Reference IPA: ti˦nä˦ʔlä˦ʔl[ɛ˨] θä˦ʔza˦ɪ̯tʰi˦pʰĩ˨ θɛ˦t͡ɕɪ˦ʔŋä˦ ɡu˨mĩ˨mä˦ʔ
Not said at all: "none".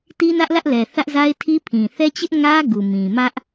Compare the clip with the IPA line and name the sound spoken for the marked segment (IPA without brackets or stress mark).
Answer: ɛ˨